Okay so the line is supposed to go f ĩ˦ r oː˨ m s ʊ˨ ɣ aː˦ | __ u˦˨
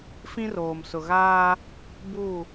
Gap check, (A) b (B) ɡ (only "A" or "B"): A